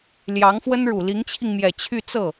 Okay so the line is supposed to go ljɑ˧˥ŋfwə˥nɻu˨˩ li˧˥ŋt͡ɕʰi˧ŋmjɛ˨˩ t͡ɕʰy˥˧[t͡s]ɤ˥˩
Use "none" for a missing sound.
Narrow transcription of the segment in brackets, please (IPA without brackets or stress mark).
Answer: t͡s